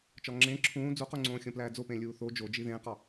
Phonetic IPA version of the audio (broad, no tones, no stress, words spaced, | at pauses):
t͡ʃɒŋ͡ǁẽː ǁʰũː d͡zuquŋ͡ǀõː xʲõplæːd͡zopẽ lʲuːθo d͡ʒod͡ʒi ðẽːqɒ